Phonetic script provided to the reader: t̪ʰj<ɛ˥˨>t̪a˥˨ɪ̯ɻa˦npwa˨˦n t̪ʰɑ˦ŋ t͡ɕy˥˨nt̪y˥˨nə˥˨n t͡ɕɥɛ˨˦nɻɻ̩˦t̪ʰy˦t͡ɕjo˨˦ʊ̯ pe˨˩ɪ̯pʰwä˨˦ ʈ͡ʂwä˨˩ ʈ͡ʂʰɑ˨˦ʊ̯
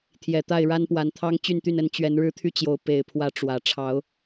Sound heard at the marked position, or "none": ɛ˨˩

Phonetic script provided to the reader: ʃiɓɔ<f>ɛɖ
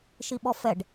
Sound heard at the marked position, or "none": f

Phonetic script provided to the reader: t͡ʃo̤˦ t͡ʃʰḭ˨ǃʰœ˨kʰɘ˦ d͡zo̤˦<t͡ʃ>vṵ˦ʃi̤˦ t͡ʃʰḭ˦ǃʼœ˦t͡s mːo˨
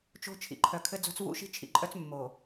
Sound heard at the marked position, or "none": t͡s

